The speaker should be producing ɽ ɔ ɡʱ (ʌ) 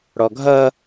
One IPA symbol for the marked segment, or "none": ʌ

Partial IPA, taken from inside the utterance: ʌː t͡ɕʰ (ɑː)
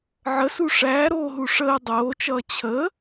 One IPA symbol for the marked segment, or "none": əː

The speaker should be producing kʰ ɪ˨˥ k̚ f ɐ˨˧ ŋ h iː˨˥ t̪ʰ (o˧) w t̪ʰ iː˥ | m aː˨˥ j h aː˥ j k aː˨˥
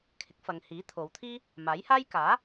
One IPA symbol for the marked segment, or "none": o˨˧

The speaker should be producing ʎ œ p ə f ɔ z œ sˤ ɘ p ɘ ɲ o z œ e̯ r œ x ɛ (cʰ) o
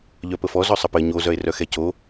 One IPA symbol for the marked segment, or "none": c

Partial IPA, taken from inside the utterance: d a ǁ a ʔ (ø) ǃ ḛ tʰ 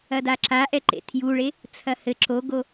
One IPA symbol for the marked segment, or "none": ɛ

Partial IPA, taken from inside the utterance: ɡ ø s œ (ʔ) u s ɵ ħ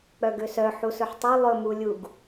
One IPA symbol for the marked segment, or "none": ħ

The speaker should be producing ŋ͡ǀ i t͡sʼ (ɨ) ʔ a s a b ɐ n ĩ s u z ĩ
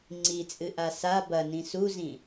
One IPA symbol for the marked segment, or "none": ɨ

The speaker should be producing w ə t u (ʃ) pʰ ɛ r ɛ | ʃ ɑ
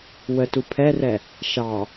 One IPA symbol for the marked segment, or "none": none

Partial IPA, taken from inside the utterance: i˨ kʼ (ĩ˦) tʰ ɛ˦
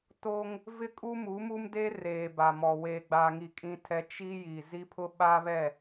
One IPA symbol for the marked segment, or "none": ĩ˦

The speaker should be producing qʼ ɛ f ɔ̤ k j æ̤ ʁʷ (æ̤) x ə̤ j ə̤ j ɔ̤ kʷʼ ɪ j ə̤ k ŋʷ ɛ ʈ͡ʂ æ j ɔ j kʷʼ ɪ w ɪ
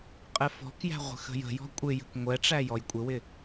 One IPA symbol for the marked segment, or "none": ə̤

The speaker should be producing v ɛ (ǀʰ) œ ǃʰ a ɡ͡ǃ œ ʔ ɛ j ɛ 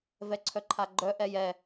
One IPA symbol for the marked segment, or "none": ǀʰ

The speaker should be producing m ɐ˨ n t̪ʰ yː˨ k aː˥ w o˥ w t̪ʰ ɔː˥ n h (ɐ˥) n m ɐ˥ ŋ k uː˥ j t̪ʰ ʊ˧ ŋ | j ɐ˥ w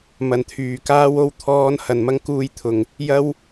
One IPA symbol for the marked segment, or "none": ɐ˧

